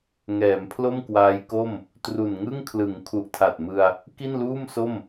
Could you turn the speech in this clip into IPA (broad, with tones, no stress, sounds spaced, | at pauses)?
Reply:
ŋ ɛː˩˦ m pʰ l o˥˩ m k w aː˦˥ j k o˥˩ m | t r u˨˩ n ŋ ɯ˥˩ ŋ kʰ l ɯ˩˦ ŋ kʰ u˨˩ ʔ tʰ a˨˩ t̚ m ɯ˧ a̯ | k i˥˩ n l uː˥˩ m s o˥˩ m